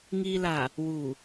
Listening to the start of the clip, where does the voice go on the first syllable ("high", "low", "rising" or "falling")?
low